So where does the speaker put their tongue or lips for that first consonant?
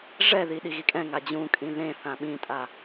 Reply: retroflex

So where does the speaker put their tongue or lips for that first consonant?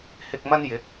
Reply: throat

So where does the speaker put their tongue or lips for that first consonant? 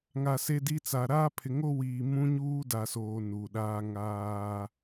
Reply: velum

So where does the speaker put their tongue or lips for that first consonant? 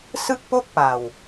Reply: tongue tip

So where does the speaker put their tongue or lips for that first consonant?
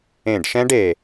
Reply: retroflex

